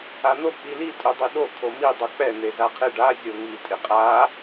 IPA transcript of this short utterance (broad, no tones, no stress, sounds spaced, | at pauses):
a n̪ o k͡p i l i tʼ u dˤ i ɗ o kʰ o m i dˤ u k͡p ɛ n̪ e z a qʰ ɪ ɖ a zʲ o ŋ i tʼ ɪ qʼ a